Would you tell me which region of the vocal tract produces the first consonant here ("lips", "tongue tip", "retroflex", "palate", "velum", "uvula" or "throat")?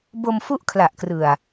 lips